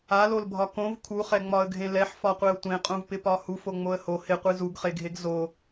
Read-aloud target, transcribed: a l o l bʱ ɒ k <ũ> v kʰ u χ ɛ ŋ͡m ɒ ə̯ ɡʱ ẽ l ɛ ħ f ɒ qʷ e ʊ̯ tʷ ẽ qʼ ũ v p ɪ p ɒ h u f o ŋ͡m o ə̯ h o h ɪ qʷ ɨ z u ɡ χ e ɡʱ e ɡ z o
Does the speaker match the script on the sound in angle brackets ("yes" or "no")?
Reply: no